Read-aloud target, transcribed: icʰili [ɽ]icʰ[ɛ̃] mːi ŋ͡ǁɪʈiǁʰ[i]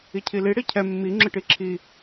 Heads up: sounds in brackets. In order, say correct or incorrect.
correct, incorrect, correct

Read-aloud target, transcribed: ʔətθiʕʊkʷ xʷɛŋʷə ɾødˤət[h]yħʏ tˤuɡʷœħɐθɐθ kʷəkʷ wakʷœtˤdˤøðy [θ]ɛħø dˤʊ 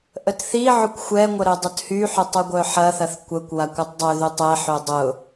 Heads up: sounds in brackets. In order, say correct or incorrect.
correct, incorrect

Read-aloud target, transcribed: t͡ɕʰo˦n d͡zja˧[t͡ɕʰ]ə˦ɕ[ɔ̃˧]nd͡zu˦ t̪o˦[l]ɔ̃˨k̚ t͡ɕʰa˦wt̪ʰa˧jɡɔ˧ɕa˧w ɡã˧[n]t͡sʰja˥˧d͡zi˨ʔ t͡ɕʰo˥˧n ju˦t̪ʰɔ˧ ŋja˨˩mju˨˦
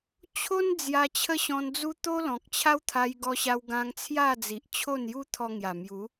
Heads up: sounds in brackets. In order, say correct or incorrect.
correct, correct, correct, incorrect

